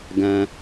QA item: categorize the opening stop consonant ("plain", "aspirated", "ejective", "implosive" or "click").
plain